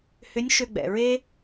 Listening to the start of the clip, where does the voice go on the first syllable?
rising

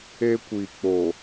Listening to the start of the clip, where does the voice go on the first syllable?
high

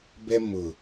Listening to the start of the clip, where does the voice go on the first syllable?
high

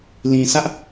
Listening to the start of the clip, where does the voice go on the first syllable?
low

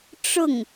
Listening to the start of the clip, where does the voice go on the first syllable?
falling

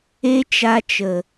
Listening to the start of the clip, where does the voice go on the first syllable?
high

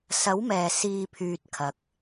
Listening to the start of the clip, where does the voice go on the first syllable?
rising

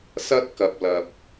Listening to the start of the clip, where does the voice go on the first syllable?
high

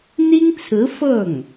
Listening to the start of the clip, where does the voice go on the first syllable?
high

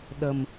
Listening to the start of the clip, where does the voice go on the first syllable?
low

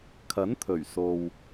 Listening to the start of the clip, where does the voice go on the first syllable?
rising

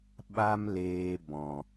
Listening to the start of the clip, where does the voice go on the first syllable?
high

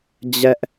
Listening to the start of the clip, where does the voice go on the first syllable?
high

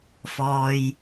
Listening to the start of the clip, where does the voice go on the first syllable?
low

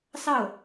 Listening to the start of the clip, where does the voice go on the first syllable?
falling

